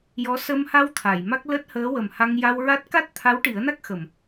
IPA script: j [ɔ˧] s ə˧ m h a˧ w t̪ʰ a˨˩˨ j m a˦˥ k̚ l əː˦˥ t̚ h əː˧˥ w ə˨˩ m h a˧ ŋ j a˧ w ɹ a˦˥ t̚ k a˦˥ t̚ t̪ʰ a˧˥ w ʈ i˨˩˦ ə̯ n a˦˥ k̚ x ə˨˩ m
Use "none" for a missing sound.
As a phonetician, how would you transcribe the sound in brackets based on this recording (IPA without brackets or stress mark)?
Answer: ɔ˧˥